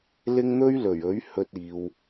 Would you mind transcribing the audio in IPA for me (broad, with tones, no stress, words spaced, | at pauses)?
lɪ˥ŋ n̪ɵ˥ɥlɵ˨˩ɥɵ˨˥ɥ hɵ˧t̚iː˨w